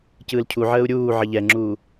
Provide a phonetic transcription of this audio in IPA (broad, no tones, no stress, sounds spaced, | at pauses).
c ɯː l cʰ u ʕ əː u̯ ɾʲ uː ʕ ə ʎ ɛ ŋ͡ǁ uː